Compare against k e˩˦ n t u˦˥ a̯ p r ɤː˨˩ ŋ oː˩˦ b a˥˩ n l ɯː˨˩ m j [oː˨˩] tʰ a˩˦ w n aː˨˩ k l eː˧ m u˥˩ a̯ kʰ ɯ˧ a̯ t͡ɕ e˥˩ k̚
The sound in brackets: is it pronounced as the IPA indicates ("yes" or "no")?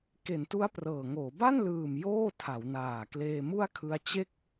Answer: no